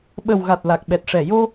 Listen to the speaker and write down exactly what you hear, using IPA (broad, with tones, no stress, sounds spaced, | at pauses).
ɓ ə˨˩ w ɣ a˨˩ t̚ l a˨˩ k̚ ɓ ɛ˨˩ t̚ ʂ ɛ˨˩ j o˧